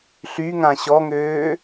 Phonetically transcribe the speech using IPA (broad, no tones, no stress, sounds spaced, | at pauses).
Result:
ɬ y ŋ ã ɕ ɔ ŋ øː